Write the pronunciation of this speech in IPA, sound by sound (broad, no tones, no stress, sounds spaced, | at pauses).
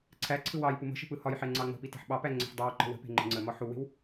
ǀʰ æ ǀʰ ɯ w ɑ j p u m ə̤ ʃ ə̤ p ɯ h ɒ j ħ e ŋ͡ǀ ɑ ŋ͡m ə̤ p i t e̤ ħ ɓ ɑ p æ ŋ͡ǀ ə̤ ħ dˤ ɑ w ǃ ə̤ w ə̤ p e̤ ŋ͡ǃ ə̤ ŋ͡ǀ ə m ɒ ħ u w e̤ w